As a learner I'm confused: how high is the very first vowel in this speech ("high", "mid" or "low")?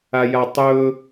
low